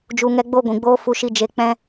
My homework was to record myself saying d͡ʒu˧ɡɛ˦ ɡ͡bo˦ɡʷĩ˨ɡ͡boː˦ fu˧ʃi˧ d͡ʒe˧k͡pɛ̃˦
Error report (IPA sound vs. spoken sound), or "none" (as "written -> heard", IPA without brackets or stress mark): ɡ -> ŋ